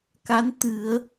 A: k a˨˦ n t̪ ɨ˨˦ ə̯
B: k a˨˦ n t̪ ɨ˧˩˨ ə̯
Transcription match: B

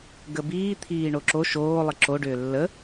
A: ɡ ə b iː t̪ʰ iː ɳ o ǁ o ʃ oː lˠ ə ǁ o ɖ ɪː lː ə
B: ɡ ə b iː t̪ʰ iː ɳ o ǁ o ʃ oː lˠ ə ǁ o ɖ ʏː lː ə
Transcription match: B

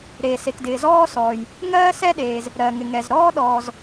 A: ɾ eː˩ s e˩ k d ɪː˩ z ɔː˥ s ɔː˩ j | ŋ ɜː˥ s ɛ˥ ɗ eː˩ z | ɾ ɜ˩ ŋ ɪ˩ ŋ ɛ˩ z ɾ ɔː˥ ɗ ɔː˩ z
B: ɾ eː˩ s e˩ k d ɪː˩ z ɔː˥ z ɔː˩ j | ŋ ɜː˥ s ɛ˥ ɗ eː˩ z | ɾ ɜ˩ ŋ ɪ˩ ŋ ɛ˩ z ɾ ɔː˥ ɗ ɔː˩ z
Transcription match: A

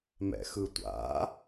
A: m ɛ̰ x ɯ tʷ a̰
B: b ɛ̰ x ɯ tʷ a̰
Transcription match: A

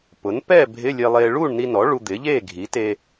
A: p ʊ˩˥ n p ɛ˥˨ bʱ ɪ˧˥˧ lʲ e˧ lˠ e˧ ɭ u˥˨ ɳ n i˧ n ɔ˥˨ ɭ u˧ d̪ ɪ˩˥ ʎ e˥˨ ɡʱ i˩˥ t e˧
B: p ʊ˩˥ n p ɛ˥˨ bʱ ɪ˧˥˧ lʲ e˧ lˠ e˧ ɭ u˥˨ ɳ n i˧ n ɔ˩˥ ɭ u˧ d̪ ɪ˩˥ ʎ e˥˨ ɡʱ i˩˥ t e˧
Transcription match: B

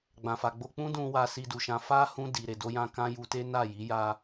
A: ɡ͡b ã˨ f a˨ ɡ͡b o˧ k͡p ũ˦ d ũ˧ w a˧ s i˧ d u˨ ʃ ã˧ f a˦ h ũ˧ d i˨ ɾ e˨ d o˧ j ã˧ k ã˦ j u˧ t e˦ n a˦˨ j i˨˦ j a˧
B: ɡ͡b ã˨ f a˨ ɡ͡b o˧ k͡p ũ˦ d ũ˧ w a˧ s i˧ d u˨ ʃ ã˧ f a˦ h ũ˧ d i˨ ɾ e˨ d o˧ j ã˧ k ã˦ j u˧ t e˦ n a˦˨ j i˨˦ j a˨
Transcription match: A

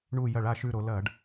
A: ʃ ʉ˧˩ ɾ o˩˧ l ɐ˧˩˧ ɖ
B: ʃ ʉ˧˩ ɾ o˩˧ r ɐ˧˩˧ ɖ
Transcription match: A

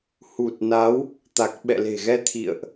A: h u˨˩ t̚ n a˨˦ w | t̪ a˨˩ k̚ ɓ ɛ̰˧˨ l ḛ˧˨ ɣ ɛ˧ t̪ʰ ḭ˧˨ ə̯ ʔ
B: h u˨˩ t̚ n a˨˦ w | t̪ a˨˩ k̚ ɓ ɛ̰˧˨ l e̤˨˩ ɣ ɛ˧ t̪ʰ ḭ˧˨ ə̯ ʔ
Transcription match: B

